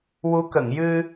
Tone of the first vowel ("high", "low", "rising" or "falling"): rising